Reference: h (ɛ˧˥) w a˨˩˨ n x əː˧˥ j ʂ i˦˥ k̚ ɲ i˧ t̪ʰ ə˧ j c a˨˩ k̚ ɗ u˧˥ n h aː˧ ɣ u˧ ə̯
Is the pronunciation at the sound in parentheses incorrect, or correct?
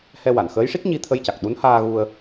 incorrect